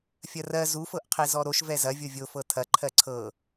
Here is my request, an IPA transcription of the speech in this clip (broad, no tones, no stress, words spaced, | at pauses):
fʲɐrɜ zu fɤʔqʰezɔɾoʃ vɛzɐ vʲovʲo fɤtʰɐ ǃʰɜǀʰɤ